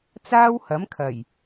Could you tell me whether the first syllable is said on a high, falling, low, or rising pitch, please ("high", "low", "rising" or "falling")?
high